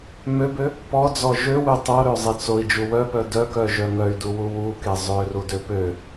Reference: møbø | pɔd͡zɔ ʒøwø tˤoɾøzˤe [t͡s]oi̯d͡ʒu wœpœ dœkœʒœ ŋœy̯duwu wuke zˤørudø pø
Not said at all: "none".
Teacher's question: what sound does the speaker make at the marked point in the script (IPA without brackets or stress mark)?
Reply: t͡s